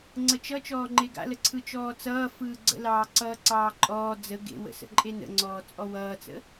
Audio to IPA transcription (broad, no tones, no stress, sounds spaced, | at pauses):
ŋ͡ǀ ə t͡ʃ ʌ t͡ʃ ɔː ŋ͡ǃ e ɡ a̰ l ə ǀʰ ɯ t͡ʃ ɔː t͡s ʌː f ɯː ɡ͡ǀ ə̰ l ɑː ǀ ʌː ǀ ɑː ǃʼ ɔː d͡z ə ɡ ḛ w ə̰ s ə̰ ǃʼ e n ə̰ ŋ͡ǀ ɔː t͡sʼ ɔ w ʌː t͡s ə̰